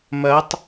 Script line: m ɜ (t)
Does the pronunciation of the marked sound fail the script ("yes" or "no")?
yes